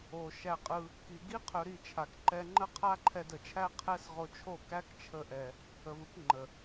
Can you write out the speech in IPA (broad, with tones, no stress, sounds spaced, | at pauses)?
o˨ ʃ æ˧ qʼ ɯ˧ | k i˨ ɡ i˦ qʰ ɵ˧ ɾ i˦˨ t͡ʃʰ a˨ k ǃ ɛ˧ ŋ͡ǃ ə˦ qʰ a˦ ǃʰ ɛ˧ d ə˨ t͡ʃʰ æ˦ qʰ ɛ˦ s ʁ o˧ t͡ʃʰ o˦˨ k æ˦ k t͡ʃʰ ə˧ ʔ ɛ˨ | ə˨ v ɯ˧ k ŋ͡ǃ ə˨